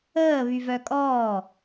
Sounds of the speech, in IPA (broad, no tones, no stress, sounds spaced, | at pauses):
əː β y v œ kʼ ɔː